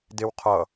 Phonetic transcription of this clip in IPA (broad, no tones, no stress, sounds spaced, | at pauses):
d e w qʰ ʌ